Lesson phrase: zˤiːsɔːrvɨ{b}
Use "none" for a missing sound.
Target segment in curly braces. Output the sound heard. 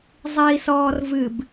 b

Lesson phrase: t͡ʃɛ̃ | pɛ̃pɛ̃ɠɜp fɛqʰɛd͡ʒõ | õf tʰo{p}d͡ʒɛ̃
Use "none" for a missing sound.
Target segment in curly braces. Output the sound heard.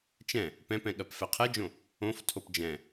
p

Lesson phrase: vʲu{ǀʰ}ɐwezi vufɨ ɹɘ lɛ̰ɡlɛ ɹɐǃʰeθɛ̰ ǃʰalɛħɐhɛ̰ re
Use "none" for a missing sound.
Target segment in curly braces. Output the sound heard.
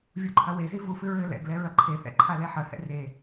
ǃʰ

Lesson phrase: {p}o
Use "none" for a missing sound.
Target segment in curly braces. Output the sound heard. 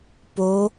p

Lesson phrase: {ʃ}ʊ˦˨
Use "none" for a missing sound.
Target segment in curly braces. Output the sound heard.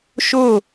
ʃ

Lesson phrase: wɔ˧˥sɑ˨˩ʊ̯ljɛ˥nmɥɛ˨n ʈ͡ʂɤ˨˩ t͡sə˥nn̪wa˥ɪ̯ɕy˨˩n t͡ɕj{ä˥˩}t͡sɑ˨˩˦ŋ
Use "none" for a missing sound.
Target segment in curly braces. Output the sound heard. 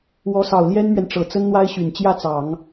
ä˥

